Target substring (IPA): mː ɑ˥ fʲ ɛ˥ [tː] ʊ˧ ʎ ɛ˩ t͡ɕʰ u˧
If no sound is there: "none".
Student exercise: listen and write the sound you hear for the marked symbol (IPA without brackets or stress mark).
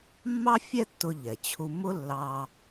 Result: tː